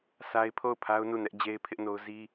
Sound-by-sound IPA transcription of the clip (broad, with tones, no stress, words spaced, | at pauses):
sʰa˦ɪ̯ pʰo˦˨ʊ̯pʰa˦ʊ̯ nu˦˨nɛ˦ʔ d͡ʑe˦ɪ̯pʰɪ˦ʔno˦ʊ̯ zi˦